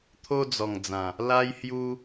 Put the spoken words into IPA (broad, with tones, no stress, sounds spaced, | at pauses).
t̪ʰ o˦ d͡z ɔ˨˩ ŋ d͡z ã˨˩ | l a˦ j h j u˦